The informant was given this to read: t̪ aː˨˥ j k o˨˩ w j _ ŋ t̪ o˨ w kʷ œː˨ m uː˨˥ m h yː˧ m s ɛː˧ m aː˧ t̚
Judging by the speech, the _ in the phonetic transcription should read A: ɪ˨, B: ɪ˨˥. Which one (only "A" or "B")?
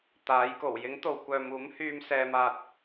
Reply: B